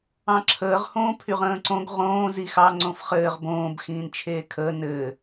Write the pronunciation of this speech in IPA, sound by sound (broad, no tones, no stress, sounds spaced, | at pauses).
ɑ̃ ǁʰ əː ʁ h õː pʰ y ʁ ə̃ː ǀ õ ɡ ʁ õː z i x ɑ ŋ͡ǀ õ f χ ɘː ʁ b õː b x ĩː n t͡ʃʰ eː kʰ əː n ɘː